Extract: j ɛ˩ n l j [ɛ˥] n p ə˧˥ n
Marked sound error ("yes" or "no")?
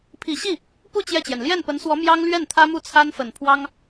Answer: yes